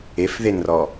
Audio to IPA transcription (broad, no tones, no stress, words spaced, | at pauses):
efðenrɔ